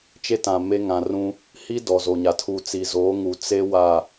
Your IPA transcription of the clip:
t͡ʃ e˦ t ã˨ m e˦ ŋ ã˨ r ũ˦ | h i˦ d ɔ˨ z o˨ ɲ a˨ tʰ uː˨ t͡s i˨ z oː˨˦ ŋ u˨ t͡s e˦ w a˦˨

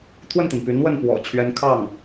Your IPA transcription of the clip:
t̪ʰ w ə˥˩ n t̪ i˩ n p y˧˥ n w ə˥˩ n p w ɔ̰˨˩ t͡ɕʰ ɥ ɛ˧˥ n kʰ ɑ˥˩ ŋ

